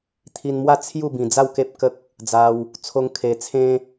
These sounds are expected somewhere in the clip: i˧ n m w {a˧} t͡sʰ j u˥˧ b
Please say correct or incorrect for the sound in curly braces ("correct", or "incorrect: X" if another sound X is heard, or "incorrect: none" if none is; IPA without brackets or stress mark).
incorrect: a˥˧